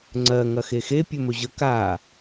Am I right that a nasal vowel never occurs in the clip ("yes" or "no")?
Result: yes